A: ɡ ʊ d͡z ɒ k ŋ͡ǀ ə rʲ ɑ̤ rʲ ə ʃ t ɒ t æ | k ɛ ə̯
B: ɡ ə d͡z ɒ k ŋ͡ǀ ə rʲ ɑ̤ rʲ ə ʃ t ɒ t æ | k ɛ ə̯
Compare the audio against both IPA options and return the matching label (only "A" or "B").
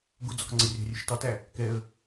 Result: A